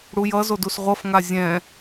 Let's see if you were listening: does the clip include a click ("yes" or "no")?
no